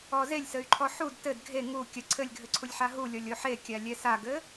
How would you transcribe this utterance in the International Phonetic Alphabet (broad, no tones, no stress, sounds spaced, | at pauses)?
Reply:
ɔ z e lʲ s ɘ y̯ ǃʰ ɔ ħ u d t ɘ d ɡʱ e ŋ u kʲ ɐ ǀʰ ɘ lʲ ɡʱ ɘ ǀʰ u lʲ ħ a ɦ u lʲ ɔ lʲ o ħ e kʲ a lʲ ɛ s a ɡ ɘ